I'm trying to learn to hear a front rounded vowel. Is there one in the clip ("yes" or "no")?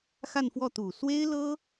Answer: no